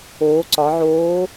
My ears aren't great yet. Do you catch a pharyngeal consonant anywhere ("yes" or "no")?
yes